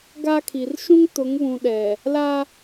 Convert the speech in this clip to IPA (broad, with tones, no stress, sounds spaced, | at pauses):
ɡ a˦ kʰ i˨ r ʃ ũ˦ ŋ t ʊ˨˦ ŋ β ũ˨ ɗ ɛ˨ | l a˦